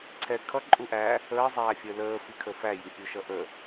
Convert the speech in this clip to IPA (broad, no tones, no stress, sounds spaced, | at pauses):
ǀʰ ɛ kʰ ʌ ǃʼ u ʔ æ | əː zˤ æː fʲ əː l əː f i kʰ ə f æ j i pʲ u ʃ ʌ ʔ ə